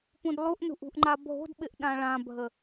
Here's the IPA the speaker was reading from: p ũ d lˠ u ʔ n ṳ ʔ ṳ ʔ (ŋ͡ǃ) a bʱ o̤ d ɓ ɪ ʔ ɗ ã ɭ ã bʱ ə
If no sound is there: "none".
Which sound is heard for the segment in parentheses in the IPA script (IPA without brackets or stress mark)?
ŋ͡ǃ